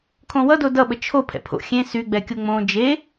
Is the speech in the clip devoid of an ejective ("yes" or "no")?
yes